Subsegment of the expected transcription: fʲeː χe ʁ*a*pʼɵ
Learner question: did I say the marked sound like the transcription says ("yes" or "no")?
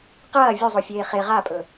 yes